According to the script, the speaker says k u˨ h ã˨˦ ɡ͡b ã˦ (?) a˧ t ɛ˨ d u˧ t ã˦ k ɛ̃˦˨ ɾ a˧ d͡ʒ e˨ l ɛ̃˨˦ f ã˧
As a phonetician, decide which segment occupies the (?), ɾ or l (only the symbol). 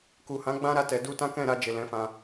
ɾ